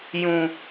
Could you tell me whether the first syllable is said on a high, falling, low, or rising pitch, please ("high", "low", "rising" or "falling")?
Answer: low